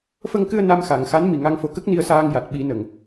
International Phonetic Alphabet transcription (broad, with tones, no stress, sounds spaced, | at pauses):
f ə˧ ŋ k ɨ˧ ə̯ n a˧ m x a˨˩˨ ŋ x a˧˥ n m i˨˩ ŋ a˧ ŋ f o˧ k ə˦˥ k̚ n i˧ ə̯ s aː˧ ŋ j a˨˩ t̚ ɓ i˨˩˦ n ə˨˩˨ ŋ